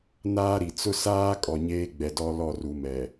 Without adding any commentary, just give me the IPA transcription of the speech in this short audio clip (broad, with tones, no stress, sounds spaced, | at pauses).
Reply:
n aː˦ ɾ i˨ t͡s ʊ˦ s aː˦ kʼ ɔ˨ ɲ eː˦ ɡ͡b ɛ˨ d ɔ˦ l ɔ˦˨ r u˨ m ɛ˨